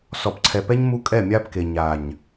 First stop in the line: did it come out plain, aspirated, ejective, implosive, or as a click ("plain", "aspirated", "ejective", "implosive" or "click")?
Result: plain